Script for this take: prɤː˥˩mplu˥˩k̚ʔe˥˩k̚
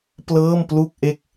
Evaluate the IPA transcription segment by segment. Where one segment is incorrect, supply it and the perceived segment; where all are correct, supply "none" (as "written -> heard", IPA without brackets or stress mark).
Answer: r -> l